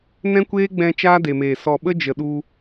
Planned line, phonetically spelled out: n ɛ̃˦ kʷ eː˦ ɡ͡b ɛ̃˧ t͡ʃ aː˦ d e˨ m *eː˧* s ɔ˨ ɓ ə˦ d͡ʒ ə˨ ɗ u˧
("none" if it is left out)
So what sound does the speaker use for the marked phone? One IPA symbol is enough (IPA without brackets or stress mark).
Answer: eː˨